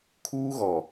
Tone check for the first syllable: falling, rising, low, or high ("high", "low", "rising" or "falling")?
high